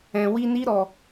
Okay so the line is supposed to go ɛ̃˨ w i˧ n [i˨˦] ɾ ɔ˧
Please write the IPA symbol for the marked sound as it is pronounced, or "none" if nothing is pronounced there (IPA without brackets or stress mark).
i˦